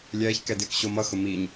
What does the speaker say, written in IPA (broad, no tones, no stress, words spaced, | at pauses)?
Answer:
lʲɛːçkɛ dɪːkɕomʌxʊ miɲ